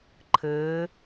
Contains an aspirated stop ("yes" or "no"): yes